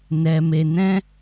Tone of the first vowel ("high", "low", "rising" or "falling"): low